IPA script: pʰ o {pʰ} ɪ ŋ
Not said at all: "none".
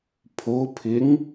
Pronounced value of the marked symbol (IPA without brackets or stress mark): pʰ